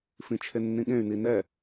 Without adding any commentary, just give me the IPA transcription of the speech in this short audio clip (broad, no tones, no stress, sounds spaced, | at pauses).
f ĩ t͡ʃʰ e nː ĩ ɠ ẽ y̯ n i n ɛ